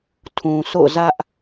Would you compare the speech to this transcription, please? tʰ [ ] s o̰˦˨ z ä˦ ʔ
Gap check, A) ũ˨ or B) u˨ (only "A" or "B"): A